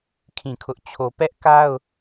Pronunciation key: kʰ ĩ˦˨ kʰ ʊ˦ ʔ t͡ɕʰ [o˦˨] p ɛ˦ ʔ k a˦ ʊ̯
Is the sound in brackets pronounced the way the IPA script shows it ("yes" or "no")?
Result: no